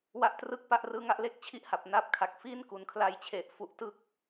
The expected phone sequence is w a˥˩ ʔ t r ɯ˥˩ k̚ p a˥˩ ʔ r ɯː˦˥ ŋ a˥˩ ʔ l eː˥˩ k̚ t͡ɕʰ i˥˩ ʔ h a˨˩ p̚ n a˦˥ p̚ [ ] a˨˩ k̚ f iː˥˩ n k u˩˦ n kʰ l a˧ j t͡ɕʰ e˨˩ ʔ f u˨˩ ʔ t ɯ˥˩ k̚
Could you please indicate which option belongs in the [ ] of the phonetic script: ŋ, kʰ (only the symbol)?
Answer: kʰ